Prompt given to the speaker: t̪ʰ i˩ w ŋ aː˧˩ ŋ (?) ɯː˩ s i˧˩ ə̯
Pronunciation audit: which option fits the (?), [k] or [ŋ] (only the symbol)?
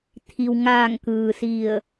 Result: k